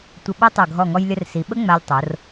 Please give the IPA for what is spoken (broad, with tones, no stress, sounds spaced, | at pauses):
tʷ ə˧ ɓ ɐ˥ tˤ ʌ˧˩ ɡʱ ɔ˧˩ ŋ ɔ˧ j lʲ ə˧ r s i˩˧ ɓ ə˥ ŋ͡m a˧ lʲ tˤ o˩˧ r